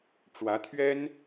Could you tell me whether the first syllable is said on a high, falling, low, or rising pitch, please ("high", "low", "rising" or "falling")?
rising